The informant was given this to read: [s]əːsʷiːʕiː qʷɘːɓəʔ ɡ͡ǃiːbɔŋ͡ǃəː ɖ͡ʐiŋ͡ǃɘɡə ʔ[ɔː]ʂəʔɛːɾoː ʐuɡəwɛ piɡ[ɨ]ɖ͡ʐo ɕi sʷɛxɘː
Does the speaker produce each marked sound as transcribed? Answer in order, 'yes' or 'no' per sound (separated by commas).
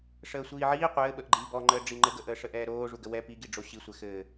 no, no, no